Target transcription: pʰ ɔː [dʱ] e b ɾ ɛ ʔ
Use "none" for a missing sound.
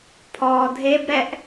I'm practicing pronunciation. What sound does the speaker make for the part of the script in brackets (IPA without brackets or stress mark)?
dʱ